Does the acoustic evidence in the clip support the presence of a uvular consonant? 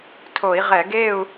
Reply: yes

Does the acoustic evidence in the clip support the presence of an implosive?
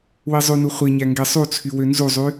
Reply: no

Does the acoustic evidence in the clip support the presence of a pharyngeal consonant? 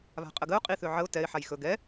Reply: yes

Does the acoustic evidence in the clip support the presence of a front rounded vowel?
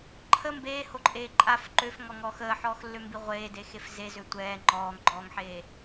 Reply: yes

